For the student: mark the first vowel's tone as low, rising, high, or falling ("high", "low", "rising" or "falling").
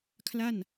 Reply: falling